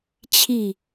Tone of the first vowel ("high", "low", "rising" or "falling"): falling